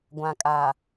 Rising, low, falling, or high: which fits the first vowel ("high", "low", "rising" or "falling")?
low